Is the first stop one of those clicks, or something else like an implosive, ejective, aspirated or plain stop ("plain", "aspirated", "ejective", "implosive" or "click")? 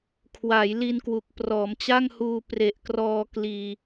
aspirated